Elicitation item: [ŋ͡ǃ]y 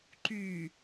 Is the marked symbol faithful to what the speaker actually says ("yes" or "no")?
no